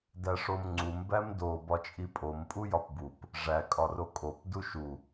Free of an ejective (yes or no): no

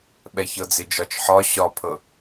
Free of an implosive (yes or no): no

